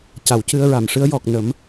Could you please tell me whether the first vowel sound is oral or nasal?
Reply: oral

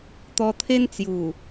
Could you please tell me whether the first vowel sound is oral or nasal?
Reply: oral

